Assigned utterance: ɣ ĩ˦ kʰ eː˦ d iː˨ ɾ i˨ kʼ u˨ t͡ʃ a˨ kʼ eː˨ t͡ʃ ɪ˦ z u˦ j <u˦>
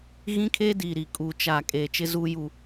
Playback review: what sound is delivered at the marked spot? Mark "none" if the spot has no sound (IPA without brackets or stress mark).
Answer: u˦